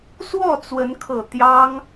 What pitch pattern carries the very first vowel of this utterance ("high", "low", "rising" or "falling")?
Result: falling